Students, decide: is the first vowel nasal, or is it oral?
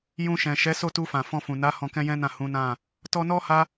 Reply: nasal